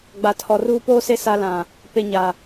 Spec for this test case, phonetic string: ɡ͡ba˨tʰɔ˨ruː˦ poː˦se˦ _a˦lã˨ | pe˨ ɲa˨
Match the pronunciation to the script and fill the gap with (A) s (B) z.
A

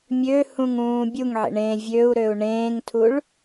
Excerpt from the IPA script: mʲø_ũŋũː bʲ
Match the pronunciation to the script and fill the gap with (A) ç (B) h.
B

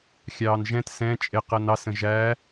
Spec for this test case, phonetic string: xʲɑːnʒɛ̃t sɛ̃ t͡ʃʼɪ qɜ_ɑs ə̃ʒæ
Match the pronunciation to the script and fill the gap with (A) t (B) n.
B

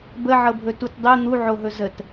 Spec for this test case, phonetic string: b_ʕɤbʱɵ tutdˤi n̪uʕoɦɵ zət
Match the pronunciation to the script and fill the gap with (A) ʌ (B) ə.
B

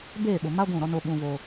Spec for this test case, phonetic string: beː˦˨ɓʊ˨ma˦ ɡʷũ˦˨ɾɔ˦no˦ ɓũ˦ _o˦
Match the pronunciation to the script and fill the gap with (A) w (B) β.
B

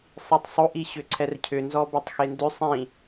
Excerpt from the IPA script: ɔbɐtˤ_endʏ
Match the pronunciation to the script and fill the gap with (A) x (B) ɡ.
A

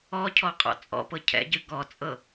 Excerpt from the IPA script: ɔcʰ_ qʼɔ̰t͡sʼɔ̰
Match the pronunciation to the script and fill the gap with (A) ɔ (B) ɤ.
A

